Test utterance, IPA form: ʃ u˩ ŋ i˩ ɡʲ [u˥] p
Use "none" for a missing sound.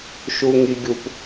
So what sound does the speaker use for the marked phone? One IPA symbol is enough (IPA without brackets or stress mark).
u˩